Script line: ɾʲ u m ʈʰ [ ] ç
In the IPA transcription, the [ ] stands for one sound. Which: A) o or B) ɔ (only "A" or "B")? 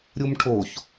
A